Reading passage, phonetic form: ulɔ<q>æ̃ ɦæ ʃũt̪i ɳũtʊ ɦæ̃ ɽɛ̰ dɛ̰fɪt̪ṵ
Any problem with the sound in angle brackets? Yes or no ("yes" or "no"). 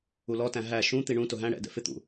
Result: yes